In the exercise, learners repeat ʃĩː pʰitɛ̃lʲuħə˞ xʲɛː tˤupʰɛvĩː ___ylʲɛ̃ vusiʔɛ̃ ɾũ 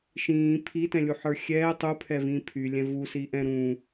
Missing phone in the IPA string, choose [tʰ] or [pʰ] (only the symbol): pʰ